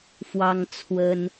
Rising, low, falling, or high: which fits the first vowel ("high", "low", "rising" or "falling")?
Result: high